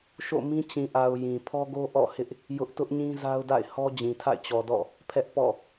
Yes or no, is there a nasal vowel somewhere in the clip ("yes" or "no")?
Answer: yes